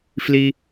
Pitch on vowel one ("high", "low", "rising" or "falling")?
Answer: low